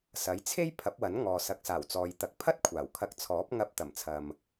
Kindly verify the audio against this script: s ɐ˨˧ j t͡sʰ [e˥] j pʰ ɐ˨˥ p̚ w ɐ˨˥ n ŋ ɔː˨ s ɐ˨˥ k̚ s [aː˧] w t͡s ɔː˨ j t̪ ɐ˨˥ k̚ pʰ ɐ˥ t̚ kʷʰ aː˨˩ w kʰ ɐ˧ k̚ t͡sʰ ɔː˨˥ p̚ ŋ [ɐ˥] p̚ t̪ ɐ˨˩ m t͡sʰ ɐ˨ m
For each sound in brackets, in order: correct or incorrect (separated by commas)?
correct, incorrect, incorrect